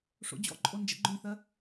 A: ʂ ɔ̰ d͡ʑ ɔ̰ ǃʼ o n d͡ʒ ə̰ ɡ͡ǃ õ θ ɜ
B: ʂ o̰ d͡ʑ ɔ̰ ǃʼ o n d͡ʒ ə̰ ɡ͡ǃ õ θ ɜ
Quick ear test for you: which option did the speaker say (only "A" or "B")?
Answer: B